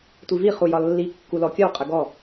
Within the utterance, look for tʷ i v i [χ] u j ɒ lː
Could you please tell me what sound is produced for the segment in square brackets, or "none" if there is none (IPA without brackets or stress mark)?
χ